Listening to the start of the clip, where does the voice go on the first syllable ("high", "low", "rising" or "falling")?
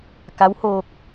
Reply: rising